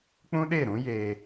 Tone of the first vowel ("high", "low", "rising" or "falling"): high